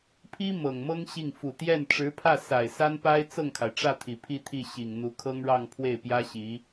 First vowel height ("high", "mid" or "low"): high